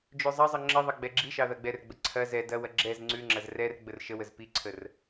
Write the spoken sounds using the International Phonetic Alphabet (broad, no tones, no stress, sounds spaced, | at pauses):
d͡ʒ ʉ zˤ ɐ zˤ ə ŋ͡ǁ ə ðˤ ɐ ɡ͡b ɛ ɡ͡ǁ i ʃ ɑ ð ɐ ɡ͡b ɛ r ɡ͡b ə ǀʰ ɐ z ɛ d ɐ w ɐ ɡ͡ǁ ɛ z ŋ͡ǀ ʉ ŋ͡ǁ ɐ z r ɛ r ɡ͡b ə r ʃ ə w ə z p i ǀʰ ə r